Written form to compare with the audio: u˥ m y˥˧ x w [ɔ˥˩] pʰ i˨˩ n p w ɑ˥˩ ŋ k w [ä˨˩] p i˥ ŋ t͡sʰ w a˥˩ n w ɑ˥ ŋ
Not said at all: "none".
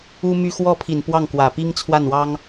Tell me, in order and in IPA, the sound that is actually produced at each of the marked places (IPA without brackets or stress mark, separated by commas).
ɔ˥˩, ä˨˩